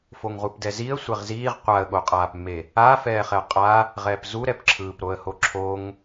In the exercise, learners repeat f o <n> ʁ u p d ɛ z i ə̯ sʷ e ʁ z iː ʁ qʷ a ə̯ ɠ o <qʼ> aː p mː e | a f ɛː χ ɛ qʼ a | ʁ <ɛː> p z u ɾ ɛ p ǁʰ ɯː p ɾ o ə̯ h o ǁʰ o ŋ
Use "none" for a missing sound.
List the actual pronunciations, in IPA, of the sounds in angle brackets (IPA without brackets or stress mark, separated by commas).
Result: ŋ, qʼ, ɛː